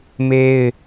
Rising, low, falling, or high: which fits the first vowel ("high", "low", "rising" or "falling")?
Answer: high